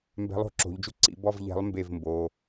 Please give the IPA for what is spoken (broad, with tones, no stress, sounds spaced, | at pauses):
m b ɛ̤˨˥ lˠ o̤˥˨ ǁ o̤˩˧ ʎ d͡ʒ u˥˨ ǀ ḭ˧˩˧ b ɔ˥˨ v ʎ ɛ̤˨˥ lˠ m b e˥˨ v m b o˩˧˩